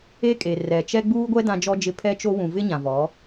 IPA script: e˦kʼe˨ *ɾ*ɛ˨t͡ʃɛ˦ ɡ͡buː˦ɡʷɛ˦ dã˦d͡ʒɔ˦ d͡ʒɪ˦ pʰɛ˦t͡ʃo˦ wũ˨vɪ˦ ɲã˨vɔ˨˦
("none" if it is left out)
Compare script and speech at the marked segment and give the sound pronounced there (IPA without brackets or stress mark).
r